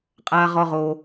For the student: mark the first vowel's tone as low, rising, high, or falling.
low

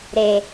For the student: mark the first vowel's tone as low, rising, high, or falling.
low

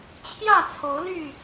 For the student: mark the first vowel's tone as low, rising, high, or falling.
falling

